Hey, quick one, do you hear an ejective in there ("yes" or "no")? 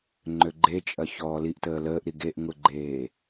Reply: yes